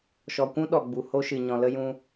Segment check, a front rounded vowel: absent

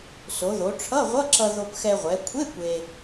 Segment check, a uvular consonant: present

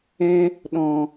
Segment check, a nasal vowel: present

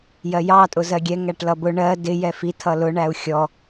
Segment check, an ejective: present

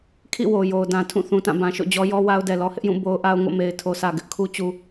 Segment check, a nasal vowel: present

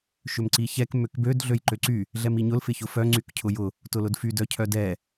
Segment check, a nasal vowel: absent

